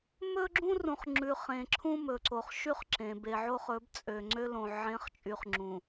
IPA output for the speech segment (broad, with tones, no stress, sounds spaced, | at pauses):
m ɵ˦ ɡ͡ǁ ũ˦ r ũ˨ χ ŋ͡ǁ ʉ˨ χ ẽ˨ ǁʰ ũ˦ m ɵ˨ ǀ o˨ χ ʃ y˦ χ ǁ ẽ˨ b e˨ ʕ o˦ χ ɵ˨˦ b t͡sʼ ø˨ ŋ͡ǀ ø˦ l õ˨ ʕ ẽ˨˦ χ t͡ʃʼ y˨ χ ŋ͡ǁ ũ˨